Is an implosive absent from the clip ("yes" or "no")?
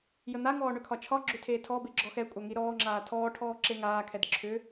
yes